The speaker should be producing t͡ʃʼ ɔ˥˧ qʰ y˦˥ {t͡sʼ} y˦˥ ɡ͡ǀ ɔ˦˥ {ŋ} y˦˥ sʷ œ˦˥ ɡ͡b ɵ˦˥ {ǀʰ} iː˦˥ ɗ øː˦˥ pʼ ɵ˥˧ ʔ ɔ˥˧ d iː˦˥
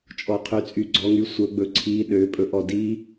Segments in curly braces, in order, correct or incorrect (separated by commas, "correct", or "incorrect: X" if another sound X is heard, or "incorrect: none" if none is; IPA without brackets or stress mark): correct, correct, correct